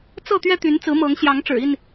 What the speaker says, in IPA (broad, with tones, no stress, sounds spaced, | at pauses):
t͡s ɤ˥˨ t̪ ɥ ɛ˦ t̪ y˨˦ n t͡s ɹ̩˨˦ m ɤ˨˦ ŋ ɕ j ɑ˨˦ ŋ ʈ͡ʂ ɻ̩˨˩ i˥˨ n